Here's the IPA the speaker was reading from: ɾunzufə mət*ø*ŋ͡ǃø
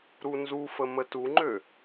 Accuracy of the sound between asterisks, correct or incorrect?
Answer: incorrect